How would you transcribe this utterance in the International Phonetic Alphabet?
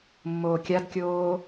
mː oː kʲ a d kʲ oː

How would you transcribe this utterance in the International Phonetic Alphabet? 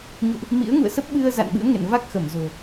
ɲ ṵ˧˨ ʔ | m ḭ˧˥ ə̯ ŋ ṵ˧˨ ə̯ s ə˦˥ p̚ ɓ ɨ˧ ə̯ z a̰˧˨ n ɓ ɨ̰˧˥ ə̯ ŋ ḛ˧˨ n v a˦˥ k̚ x ə˧˩ m z o̤˨˩

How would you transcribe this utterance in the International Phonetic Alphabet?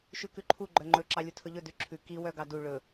ʃ ʉ k ʉ ǃʰ u ɡ͡ǃ œ ŋ͡ǃ ɵ ǁ ɑ lʲ u tʰ ɵ ʎ ɵ d ʉ ǁʰ ʉ k i w œ ɡ ɑ d u ɭ ɵ

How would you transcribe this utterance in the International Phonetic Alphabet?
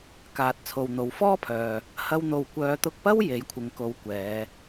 k aː˨ t̚ t͡sʰ o˨ w n̪ o˨˧ w f ɔː˥ pʰ œː˨ | h ɐ˥ w n̪ o˧ w kʷ œː˨˧ t̪ ʊ˧ k̚ p ɐ˥ w j e˨˥ j kʷʰ ɪ˨ ŋ k o˨˧ w kʷ ɛː˨˧

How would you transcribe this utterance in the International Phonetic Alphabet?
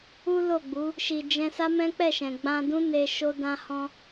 u˦ l o˦˨ ɡ͡b u˨˦ | ʃ i˧ d͡ʒ ɛ̃˦ s a˦ m ɛ̃˦ k͡p ɛ˦˨ ʃ ɛ̃˨ ɡ͡b ã˧ d ũ˦ n e˧ ʃ o˦ d ã˦ h ɔ̃˦

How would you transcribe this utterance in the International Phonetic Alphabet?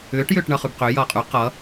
ʏː ʈ j ʏː ʈ ɳ ʌ χ ʉ b q ʏː j ʌː qʼ ʉ q ʌ

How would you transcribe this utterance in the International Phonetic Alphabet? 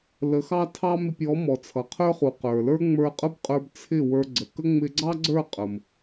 l ə˨˦ x ɑ˦ tʰ ɑ˦ m ɪ˧ pʲ ɔ˨˦ m ɔ˨ t͡sʰ ʌ˨ qʰ ə˞˦ χ u˨ q ə˞˨ l ə˞˦ ŋ͡m ə˞˧ qʼ ə˦ b qʼ ə˞˧ b t͡sʰ ɪ˦˨ w ə˞˧ ɡ͡ǀ ə˨ k ə˦ ŋ͡m ɪ˧ ɡ͡ǀ ɑ˦ ɡ͡ǀ ə˞˦˨ qʼ ə˨ m

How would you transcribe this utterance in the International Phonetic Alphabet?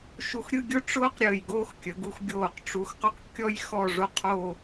ʃ u˧ x ɾʲ ɯ˥˧ ɡʲ ʊ˥ ʈ͡ʂ ʊː˥ q ɾʲ əː˧˩ j ɡ oː˥ x kʲ ə˩˧ ɡ u˧ x ɡʲ oː˧˩ q ʈ͡ʂ u˧ x q ɵ˥ q kʲ ɔ˥ j x ɔ˥˧ ʐ o˥˧ qʰ o˥˧

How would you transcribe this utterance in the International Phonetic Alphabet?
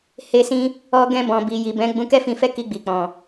h e˧ s ĩ˧ | ɔ˧ ɡ ɛ̃˧ b ɔ̃˨ b i˨ j i˨ b ɛ̃˨˦ ɡ͡b ũ˧ k ɛ˦ f ĩ˧ f ɛ˦ k i˧ ɡ͡b i˨ k͡p ɔ̃˨

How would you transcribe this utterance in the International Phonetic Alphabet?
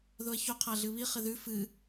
ð o ɐ̯ ç o qʰ a ɮ ɨ β i χ ɪ ð ʉ f ɨ

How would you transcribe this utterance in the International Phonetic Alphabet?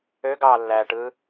ø ɡ ɑː lː æː ʈ ɯː

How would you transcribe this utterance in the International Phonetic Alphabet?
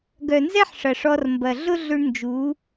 ɡ œ˨ n z ɛ˦ ħ ʂ ɐ˨ ʂ ɔ˧ r m b ɐ˨ ɮ ʊ˦ ɮ ʏ˧ ɳ n d͡ʒ u˨˦

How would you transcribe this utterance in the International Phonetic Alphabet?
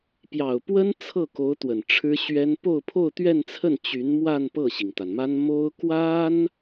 p j ɑ˨˩ ʊ̯ p w ə˥ n t͡sʰ ɤ˥˩ k o˧˥ ʊ̯ t̪ w ə˨˩ n ʈ͡ʂʰ ɻ̩˥ ɕ ɥ ɛ˥ n p o˥˧ ʊ̯ pʰ o˥˧ ʊ̯ t̪ ɥ ɛ˥˧ n t͡sʰ ə˥˩ n t͡ɕ y˧˥ n m w a˥˧ n p ɤ˥˩ ɕ i˩ ŋ t̪ a˩ n m a˥ n m o˥ ʊ̯ k w a˥ n

